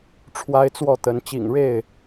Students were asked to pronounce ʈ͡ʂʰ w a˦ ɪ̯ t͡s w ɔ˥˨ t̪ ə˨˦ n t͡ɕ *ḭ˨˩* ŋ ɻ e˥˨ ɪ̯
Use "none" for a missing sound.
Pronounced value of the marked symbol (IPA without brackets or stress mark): ḭ˨˩